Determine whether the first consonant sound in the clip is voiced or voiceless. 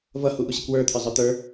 voiced